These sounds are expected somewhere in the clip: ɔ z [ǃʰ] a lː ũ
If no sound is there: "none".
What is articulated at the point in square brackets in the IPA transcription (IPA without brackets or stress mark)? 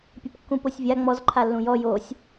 ǃʰ